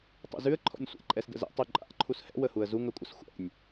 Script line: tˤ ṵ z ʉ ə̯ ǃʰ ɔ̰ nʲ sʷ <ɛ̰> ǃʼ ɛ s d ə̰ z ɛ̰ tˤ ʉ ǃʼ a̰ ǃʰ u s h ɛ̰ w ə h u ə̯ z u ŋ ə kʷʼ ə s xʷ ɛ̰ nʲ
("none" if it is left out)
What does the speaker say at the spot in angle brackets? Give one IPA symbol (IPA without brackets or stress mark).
ɛ̰